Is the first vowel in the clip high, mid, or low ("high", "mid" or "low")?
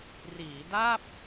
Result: high